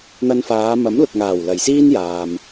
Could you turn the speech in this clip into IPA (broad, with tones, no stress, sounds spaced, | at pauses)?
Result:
n̪ ɐ˧ n f aː˨˧ m ɐ˨˥ m l ʊ˨ k̚ ŋ aː˨˩ w l ɐ˨˩ j s iː˥ n j aː˨ m